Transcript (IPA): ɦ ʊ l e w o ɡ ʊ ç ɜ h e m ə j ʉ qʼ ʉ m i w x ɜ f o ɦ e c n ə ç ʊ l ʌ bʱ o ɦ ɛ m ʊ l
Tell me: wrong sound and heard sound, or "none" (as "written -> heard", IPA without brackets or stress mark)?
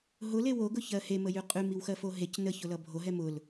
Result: none